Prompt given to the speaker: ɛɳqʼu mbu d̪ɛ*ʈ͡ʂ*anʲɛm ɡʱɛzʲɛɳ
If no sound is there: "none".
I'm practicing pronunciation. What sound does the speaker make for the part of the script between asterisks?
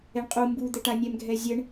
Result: ʈ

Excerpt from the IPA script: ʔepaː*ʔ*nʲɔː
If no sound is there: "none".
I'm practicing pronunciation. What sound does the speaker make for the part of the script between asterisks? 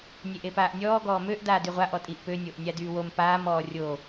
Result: ʔ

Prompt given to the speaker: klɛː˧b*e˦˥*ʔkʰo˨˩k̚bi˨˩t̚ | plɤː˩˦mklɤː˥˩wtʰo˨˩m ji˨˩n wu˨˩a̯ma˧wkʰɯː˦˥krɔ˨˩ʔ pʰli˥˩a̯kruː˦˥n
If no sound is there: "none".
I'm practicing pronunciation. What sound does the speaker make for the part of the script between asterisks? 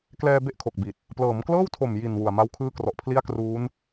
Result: e˥˩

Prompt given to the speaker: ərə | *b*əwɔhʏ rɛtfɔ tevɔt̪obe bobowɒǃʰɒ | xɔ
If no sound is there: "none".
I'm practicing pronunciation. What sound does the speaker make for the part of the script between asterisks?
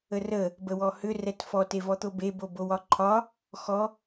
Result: b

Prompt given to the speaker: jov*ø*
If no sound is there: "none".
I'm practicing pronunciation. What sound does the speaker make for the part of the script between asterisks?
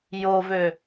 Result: ø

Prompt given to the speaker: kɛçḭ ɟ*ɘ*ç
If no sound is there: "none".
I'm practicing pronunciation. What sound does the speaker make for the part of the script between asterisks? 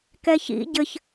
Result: ɘ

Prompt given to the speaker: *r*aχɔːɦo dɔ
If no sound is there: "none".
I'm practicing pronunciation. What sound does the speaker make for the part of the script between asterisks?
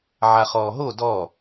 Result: ʕ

